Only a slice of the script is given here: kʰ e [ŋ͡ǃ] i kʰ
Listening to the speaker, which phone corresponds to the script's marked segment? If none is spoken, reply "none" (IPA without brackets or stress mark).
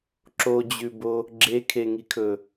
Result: ŋ